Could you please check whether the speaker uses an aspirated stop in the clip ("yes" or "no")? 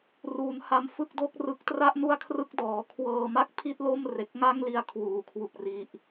yes